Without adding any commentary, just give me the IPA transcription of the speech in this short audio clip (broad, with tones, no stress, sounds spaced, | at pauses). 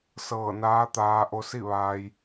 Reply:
s ɤː˧˩ n aː˧˥ t̪ aː˧ ʔ o˧ s i˥˨ ʋ aː˧ j